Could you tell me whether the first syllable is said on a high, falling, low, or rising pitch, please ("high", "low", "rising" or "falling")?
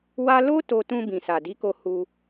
high